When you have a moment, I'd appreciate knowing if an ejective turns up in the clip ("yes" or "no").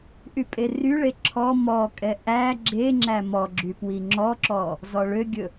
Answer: yes